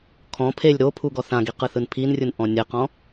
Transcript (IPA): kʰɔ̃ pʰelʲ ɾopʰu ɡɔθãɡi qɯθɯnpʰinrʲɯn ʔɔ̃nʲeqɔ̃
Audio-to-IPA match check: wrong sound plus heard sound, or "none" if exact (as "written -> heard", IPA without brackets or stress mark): none